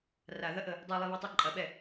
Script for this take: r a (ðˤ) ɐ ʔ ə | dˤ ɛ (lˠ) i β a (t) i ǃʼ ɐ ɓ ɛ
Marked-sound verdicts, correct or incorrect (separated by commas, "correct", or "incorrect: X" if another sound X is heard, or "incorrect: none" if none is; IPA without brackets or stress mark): incorrect: ð, correct, incorrect: tˤ